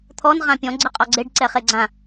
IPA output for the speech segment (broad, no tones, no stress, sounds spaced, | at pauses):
t̪ʰ ɔ n ʁ ã pʲ ɔ̃ ɡ͡ǀ ɯ qʼ ɔ ɡ͡ǀ e ɖ ǀ ɛ χ e ɡ͡ǀ ã